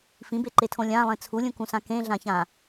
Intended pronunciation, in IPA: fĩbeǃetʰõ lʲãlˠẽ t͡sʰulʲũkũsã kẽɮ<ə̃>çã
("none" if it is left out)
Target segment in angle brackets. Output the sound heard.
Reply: ã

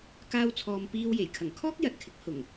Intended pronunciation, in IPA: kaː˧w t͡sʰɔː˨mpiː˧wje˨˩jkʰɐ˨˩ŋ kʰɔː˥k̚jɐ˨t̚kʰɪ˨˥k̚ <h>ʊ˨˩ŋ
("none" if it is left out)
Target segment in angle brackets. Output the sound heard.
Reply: h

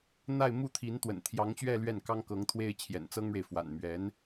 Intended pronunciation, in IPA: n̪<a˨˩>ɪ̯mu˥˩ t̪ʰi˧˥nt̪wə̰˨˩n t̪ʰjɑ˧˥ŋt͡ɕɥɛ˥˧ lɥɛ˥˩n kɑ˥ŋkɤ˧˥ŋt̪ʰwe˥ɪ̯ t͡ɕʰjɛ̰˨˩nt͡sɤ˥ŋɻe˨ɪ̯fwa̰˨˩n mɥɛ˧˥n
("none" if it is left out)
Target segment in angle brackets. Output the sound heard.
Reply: a˥˧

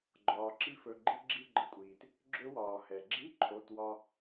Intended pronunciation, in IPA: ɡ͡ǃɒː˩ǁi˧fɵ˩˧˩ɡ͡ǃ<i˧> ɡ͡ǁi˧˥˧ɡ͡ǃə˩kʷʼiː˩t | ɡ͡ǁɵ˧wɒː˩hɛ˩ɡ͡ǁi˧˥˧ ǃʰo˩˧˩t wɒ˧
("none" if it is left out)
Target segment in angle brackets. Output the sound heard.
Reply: i˧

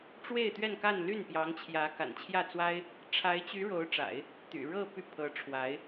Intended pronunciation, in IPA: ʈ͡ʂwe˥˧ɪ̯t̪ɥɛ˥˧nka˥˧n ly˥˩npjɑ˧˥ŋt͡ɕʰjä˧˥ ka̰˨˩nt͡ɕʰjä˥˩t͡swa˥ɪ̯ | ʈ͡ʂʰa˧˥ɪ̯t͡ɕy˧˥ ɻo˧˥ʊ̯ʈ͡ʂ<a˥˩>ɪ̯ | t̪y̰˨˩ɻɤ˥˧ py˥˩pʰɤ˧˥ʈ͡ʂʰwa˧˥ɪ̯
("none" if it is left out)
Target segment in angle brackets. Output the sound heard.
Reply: a̰˨˩˦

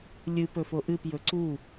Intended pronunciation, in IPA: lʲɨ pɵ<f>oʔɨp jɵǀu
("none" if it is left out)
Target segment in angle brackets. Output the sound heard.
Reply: f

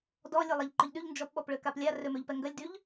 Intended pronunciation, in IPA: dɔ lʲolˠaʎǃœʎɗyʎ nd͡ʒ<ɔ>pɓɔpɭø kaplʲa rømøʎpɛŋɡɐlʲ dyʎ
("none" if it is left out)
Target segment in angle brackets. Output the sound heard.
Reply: ɔ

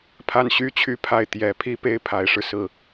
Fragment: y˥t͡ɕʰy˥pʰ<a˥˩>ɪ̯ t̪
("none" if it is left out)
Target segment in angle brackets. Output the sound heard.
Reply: a˥˩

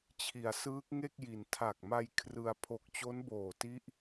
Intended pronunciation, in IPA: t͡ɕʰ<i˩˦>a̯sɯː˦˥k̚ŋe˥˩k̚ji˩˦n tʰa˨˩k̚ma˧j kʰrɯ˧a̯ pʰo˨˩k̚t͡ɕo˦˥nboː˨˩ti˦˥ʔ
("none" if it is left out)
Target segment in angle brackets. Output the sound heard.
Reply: i˩˦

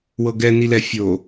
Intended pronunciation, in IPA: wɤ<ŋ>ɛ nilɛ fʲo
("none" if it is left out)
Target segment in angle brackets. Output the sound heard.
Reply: ɡ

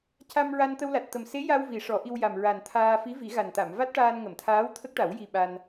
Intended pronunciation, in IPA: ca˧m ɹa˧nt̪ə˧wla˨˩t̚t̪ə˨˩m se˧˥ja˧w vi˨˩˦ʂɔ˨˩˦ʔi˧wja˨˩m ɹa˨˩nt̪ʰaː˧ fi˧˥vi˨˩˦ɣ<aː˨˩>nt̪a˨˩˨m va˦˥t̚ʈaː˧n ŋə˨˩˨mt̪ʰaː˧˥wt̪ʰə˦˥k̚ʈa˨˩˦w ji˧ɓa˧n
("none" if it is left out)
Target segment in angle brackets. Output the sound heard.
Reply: a˨˩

